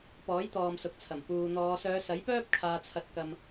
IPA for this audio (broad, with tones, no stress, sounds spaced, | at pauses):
p ɔː˨˥ j t̪ ɔː˨ m s ʊ˨ k̚ t͡sʰ ɐ˨˩ m p uː˨ n̪ ɔː˨˧ s œː˨˧ s ɐ˨˥ j p œː˥ p̚ kʰ aː˨ t͡sʰ ɐ˨˥ t̚ k ɐ˨ m